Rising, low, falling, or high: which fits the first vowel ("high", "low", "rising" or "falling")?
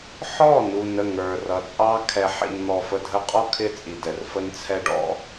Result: falling